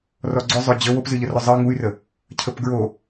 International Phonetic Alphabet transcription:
r ɔ ɡ͡ǀ ʊ zˤ ʊ d͡ʑ ə w o p z ɨ ʎ ə r ʊ zˤ ɨ ŋ u y̯ r ə | cʰ ə p ɡ ɹ o

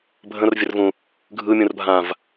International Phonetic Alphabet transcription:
bʱ ə̃ r vʲ ə r v ũ | ɡʱ ɯ mʲ ũ r bʱ ã v

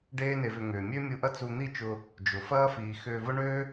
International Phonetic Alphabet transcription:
ɖ eː˦ n e˧ v ʏ˧ ŋ ʏː˨ mʲ ø˦ mʲ u˧ ʔ ɐ˦ t͡s u˧ n̪ i˦˨ t͡ʃ ʊ˧ | d͡ʒ ʊ˨ f ɐː˦ f iː˨ x ʏː˧ v ʊ˦ ɳ øː˦

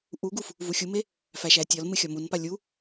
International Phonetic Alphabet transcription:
ʔ u ɡ u f | v u xʲ u m e | f æ ʃ æ tʲ ɒ l m ɨ xʲ ɒ m u n p a lʲ u

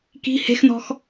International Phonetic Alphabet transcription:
k i̤ h e̤ x n ɔ̤ x

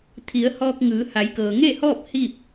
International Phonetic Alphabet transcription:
t̪ʰ i˩˧ ə̯ h ɔː˧ k̚ ŋ ɯː˩˧ h a˩˧ j k ɤː˩ ŋ e˥˨ h ɔː˥˨ p̚ h iː˥˨ p̚

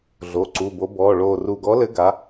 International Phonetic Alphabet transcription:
ɮ o˩˧˩ ǀ u˩˧˩ b o˨˥ b ɔː˩˧˩ ɭ oː˧˩ r u˧˩ ɡ ɔ˨˥ l ɘ˨˥ ɡ a˨˥

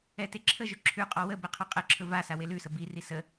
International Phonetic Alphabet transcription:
ɛ t e ǁʰ ə ʒ ɵ ǁʰ ʉ qʼ ɔ w ə b e qʰ ɵ qʼ ɛ ǁʰ ɵ v a s a w e l ʉ s ə b i r i s ə

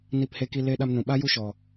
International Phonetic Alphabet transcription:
n i˧ p h e˧ k i˧ l e˧ ɗ a˧ m n ũ˨ ɓ a˦ j u˧ ʃ ɔ˨

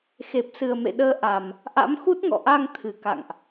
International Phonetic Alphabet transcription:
x e˨˩ p̚ s ɨ˨˩ ə̯ m ḛ˧˨ ɗ əː˨˦ ʔ a˨˩ m | ʔ a̰˧˥ m x u˦˥ t̚ ŋ ɔ̰˧˨ ʔ a˧ ŋ t̪ʰ ɨ˨˩ k a̰˧˨ ŋ ʔ

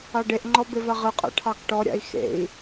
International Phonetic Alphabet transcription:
ɑ ɖ e ʔ ŋ͡ǃ ɔ b e v a ʁ ɨ qʼ a̰ ʈʰ ɑ k ʈ ɔ ɾʲ a̰ i̯ x ḛ i̯

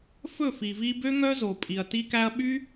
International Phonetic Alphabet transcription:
f ɵ˦˨ f i˨ v i˧ b ø˦ ŋ œ˦ z o˨ pʼ i˨ ɐ̯ t i˦ k æ˦ ɐ̯ ɓ y˦

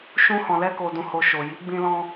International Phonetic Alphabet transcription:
ʃ ũ˧ h ɔ̃˨ l ɛ˧ k o˨ d ũ˨ h o˨ ʃ o˨ j i˨˦ ɡ͡b ĩ˧ l ɔ̃˧

